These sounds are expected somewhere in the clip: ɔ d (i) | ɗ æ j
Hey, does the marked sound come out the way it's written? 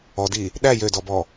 yes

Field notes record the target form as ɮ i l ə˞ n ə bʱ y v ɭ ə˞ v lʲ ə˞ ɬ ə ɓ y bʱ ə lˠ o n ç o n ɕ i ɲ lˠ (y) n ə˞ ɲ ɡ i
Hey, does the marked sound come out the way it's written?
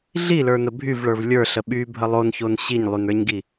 yes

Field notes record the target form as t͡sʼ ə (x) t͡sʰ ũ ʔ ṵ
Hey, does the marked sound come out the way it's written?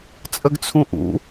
no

